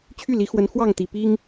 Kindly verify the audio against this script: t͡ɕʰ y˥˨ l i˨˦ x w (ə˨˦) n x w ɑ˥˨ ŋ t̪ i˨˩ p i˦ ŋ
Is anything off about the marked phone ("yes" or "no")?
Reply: no